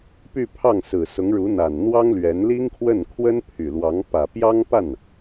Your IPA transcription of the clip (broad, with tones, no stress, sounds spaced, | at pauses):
p y˥˧ pʰ ɑ˥˩ ŋ s ɹ̩˨˩ s ʊ˧˥ ŋ ɻ u˧˥ n̪ a˨˩ n n̪ w ɑ˥ ŋ l ɥ ɛ˧˥ n l i˥ ŋ kʰ w ə˥˩ n kʰ w ə˥ n pʰ y˨˩ l w ɑ˧˥ ŋ p ä˨˩ p j ɑ˥ ŋ p a˥˩ n